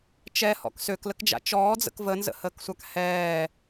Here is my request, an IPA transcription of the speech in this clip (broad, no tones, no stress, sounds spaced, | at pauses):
t͡ʃ ɛ h ɔ̰ k s ø k l ə k d͡ʒ a̰ t͡ʃ ɔː d͡z ə̰ k v ə n z ə̰ h əː k sʷ a k h ɛː